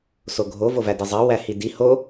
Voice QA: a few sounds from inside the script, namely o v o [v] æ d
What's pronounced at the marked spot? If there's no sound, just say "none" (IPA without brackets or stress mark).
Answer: v